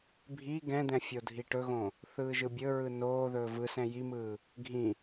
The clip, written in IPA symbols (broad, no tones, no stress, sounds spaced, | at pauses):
bʱ i ɡ ɛ̃ d̪ ɛ̃ fʲ o dʱ i ʈ ɵ ɣ õ | θ ɯː ʒ ɯ bʲ ɵ ɹ ɯ n oː ð ɵː v ɯ s ɛ̃ j i m ɯː | ɡʱ ĩ